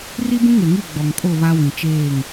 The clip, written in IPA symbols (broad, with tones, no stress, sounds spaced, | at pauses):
r i˦ b ũ˦ ŋ e˨ ŋ i˦˨ ɡ͡b ɔ˨ ŋ kʼ o˦˨ β a˦ w ĩ˨ t͡ʃ eː˦˨ ŋ